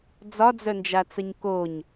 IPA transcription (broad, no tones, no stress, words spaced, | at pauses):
d͡zɒd͡zœnd͡ʒat͡səɲ koɲ